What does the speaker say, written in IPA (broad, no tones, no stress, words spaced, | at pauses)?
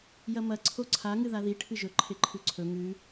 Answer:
jɐmɐ ǀʰoǀʰa ŋɨðaði ʈʰɨʒɵ ǃʰeǃʰʉǀʰɵ ŋʉ